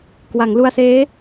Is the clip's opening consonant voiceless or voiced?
voiceless